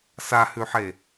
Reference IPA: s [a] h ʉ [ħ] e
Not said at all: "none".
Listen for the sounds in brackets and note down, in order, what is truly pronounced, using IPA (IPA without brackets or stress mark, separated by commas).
a, ħ